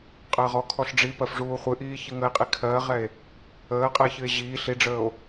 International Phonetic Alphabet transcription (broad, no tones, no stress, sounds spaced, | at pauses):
qʼ əː ʁ ɔ kʰ ɔ ɬ ɖ͡ʐ i p ɜ f ʐ uː χʷ ɨ ʔ iː ç ɨ ŋ ə e̯ qʼ i kʰ ɜ ʁ ɛ e̯ | əː qʼ ɛ ç ɨ e̯ ʑ iː ɬ i ɖ͡ʐ əː o̯